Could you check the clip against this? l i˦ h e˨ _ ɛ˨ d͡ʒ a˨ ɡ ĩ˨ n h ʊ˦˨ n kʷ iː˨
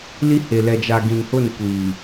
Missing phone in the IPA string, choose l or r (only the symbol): l